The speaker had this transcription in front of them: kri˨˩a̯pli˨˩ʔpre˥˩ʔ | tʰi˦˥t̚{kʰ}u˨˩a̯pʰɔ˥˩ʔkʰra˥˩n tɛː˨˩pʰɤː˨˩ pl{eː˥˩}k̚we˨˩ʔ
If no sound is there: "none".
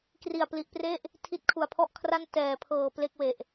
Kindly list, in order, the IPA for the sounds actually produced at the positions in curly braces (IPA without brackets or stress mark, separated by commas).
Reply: kʰ, e˥˩